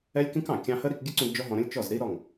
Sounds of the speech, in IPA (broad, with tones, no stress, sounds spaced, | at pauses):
ɛ˦ lʲ k ĩ˦ k ɑ̃˨ kʲ ɑ̃˧ h ə˦ ɾ i˧ k ɡʲ ə˦ ǀ ũ˧ d d͡ʒ ɔ˦ ɦ ɔ̃˧ ɾ ə̃˦ lʲ t͡ʃ ɔ˦˨ z ɾ i˦ ɾ ɔ˦˨ ŋ